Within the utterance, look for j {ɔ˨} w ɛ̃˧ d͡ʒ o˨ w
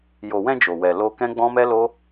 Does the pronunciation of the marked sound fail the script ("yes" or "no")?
yes